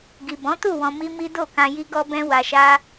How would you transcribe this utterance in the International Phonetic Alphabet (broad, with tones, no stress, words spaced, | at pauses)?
ɡi˨bɔ̃˨˦tu˦˨ wɔ̃˧mi˦mi˦ do˦˨kã˧ ji˦ɡɔ˦bɛ̃˦ wa˧ʃa˦